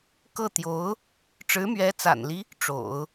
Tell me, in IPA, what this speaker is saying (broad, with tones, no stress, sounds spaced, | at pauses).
k ɤ˥˩ t̪ j o˧˥ ʊ̯ | ʈ͡ʂ ɻ̩˧˥ m ɥ ɛ˧˥ t͡s a̰˨˩ n l i˦ | ʈ͡ʂ o̰˨˩˦ ʊ̯